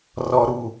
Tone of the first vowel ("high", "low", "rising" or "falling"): high